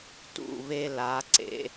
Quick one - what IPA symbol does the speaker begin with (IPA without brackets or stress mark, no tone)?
t